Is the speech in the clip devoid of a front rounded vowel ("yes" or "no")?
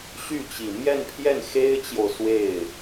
no